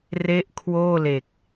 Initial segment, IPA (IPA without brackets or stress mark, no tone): r